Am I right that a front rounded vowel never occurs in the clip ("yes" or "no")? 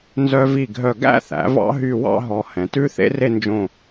no